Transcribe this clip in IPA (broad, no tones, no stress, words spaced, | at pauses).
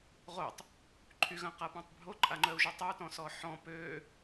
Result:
ʁotˤ | ǃʰyɣɐ̃qapɔ̃tˤ bʱoǃʼaŋ͡ǃœu̯ʒœ tˤɐu̯tɔ̃sɔ ħɔ̃ pø